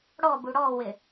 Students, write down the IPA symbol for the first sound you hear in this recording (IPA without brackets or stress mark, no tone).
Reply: ɽ